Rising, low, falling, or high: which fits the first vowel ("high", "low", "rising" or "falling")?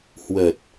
low